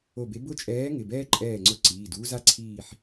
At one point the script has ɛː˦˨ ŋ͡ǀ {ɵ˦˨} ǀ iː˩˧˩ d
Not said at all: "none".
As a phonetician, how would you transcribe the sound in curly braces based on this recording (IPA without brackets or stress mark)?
ʊ˦˨